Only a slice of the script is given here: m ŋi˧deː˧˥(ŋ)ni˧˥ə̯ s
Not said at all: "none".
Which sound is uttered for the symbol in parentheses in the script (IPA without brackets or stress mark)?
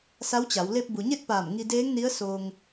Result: ŋ